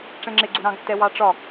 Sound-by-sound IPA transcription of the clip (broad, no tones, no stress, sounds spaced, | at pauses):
ʈ͡ʂ ɛ̃ ŋ͡ǁ ɪ ɡ͡ǀ u ɾ ɑ̃ ɡ tː ɛ w ɑ ʈ͡ʂ ɒ